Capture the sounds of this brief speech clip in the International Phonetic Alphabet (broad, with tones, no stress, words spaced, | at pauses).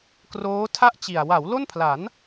kroː˦˥tʰa˥˩ʔt͡ɕi˨˩a̯ wa˩˦w lo˥˩npʰla˩˦n